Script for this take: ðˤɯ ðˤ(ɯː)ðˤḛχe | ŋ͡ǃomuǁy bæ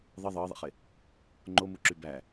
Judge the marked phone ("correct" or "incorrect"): correct